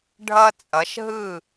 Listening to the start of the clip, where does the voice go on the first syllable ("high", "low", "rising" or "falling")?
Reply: high